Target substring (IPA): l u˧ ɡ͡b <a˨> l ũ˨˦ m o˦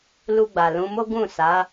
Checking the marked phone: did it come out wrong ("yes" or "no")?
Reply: no